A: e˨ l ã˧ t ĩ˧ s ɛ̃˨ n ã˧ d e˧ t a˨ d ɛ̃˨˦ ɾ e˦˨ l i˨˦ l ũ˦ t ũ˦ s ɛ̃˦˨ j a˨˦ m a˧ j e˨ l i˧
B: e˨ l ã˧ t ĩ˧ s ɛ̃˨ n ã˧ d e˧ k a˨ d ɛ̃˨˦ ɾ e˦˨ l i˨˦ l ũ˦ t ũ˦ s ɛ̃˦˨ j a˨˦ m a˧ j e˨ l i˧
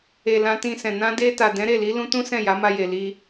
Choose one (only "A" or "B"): A